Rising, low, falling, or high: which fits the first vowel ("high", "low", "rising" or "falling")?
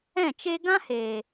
falling